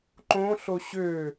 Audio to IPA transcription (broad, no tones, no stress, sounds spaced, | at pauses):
ǃ õ ɬ o ɕ ø